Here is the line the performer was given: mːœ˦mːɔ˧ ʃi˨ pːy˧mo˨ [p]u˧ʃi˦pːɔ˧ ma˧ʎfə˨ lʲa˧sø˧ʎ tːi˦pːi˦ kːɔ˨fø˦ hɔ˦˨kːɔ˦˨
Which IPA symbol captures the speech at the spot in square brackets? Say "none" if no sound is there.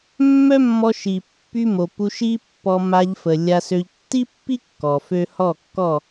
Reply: p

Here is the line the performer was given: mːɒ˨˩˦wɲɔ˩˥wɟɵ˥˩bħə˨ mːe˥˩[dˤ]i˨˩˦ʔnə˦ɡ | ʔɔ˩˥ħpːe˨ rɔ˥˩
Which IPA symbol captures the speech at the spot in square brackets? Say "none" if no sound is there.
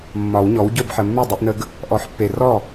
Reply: dˤ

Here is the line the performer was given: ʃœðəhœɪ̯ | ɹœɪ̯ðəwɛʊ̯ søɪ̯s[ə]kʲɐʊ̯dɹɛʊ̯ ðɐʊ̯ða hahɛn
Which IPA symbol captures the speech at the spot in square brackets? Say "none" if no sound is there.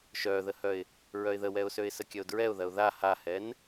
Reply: ə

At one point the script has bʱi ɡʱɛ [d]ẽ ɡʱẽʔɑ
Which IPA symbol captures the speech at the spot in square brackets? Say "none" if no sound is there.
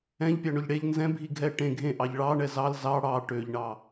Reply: ʈ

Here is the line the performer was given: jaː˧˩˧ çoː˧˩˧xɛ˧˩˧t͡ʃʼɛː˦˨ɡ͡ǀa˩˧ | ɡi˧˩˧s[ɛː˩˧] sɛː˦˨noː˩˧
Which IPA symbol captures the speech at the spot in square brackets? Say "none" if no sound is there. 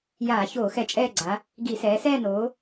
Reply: ɛː˩˧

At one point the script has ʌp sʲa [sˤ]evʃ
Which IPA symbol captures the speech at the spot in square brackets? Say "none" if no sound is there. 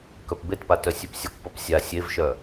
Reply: sʲ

